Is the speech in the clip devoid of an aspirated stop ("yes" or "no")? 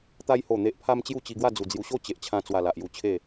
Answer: no